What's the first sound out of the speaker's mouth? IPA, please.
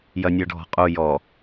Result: j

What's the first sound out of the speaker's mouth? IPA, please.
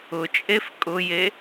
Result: ʊ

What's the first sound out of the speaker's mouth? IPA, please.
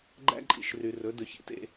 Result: ɡ͡ǃ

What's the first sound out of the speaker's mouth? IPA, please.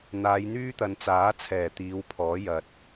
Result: n̪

